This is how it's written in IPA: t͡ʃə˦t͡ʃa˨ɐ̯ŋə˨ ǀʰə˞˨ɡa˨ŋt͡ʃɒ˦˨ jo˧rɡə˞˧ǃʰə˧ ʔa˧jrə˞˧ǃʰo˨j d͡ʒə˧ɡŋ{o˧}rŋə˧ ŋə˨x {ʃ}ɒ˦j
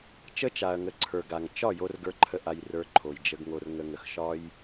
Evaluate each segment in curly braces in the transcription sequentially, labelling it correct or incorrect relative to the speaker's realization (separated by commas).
correct, correct